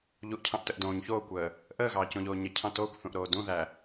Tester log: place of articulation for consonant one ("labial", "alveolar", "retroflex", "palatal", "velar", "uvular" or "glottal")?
palatal